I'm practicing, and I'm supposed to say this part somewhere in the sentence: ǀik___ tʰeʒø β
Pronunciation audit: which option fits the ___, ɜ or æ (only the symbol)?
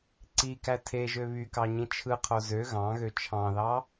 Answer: æ